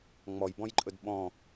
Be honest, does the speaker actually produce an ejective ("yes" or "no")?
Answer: yes